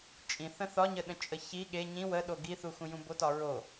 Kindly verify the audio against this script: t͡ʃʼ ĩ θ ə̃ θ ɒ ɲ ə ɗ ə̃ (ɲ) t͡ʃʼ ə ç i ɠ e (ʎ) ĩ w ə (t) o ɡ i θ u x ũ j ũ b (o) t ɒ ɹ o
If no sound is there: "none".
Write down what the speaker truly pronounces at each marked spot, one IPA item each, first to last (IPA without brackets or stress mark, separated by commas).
none, ɲ, ɗ, o